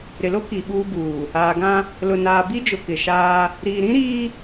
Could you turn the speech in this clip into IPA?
ɾɪ˨lo˦ ki˨ ɓuː˦buː˨ | aː˨ɡã˦ | lʊ˨naː˨ bi˦d͡ʒʊ˨ kɪ˨ ʃaː˦ | ɾiː˨ɾĩ˦ɾiː˦

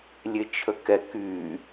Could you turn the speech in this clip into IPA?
lʲet͡ʃʰəkɛ ky

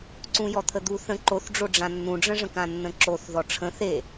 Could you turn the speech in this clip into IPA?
ǀũjɔt̪ʰəd̪u θə̃ ǃoθɖ͡ʐoɖ͡ʐã nːũɖ͡ʐə̃ʐə̃k ãnːə̃ǁoθ ðɔʈ͡ʂʰə̃ θe

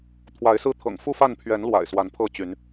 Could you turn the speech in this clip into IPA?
t̪ʰwa˨˦ɪ̯sɹ̩˦t̪ʰɤ̰˨˩ŋ fu˥˨fa˥˨n pʰɥɛ˨˦n lwa̰˨˩ɪ̯ swa˨˦npʰɤ˥˨t͡ɕy˨˦n

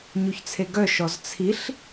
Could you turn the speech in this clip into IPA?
ɲuçt͡sʰeɡœ ʃɔzt͡sʰiɬ

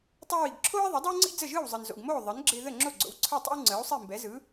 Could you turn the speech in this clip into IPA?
tˤəː˧ wi˩ɡǁʰoː˥i̯ðˤɪ˩˥ dˤɛ˥wŋ͡ǀḭ˥ d͡zə˥˩ʒɯː˥˩wzˤɯ˩n zo̰˩ɡmoː˥˩ ðˤɯ˩˥nɡ͡ǁɪː˧ ðə˥˩ŋ͡ǁo˥˩ɡ͡ǀo̰˩˥w ǀʰɯ˥˩tˤə̰˥w ŋ͡ǀəː˩˥u̯sˤi˥˩mbɛ˩˥zɯ˩˥

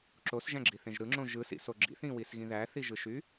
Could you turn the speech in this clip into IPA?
ǁosʒæ̃ɡ͡ǁiθẽʒ ɾɯŋ͡ǁõ ʒɯsḭso ɡ͡ǁḭθĩwisɣĩ ðæθiʒɯʃy

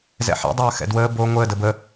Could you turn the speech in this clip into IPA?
zɛ̰ħɛ̰ dˤɐːxɛ̰dwəː bo ŋʷəː dəbə

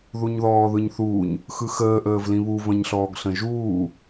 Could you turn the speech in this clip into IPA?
ðuɲðɔːðɯɲθuːɲ | xɯxəː ʔəːvlĩβu və̃ɲɬɔːɡɬə̃ʒuː

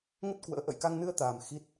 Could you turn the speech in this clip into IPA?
ŋə˦˥t̚ kwə̰ː˧˥ ʔə̰˧˨jka˧ŋnɨ˧ə̯t̪aː˨˩m xi˦˥t̚

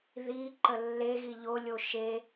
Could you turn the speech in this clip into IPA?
ði ǃəlːeɣi ʎolʲo ʃe

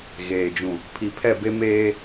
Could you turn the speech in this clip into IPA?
ɣeː˨d͡ʒũ˨ | pʰi˨pʰɛ˦˨ be˦meː˦

